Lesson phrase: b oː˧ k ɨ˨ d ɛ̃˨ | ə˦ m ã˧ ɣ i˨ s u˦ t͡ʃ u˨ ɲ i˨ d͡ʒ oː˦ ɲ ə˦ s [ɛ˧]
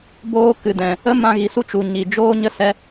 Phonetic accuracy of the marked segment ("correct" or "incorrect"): correct